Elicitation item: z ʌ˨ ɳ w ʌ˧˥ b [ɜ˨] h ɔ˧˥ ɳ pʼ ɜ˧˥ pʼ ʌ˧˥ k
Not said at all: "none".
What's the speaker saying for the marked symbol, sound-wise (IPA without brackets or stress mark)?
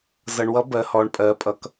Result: ɜ˧˥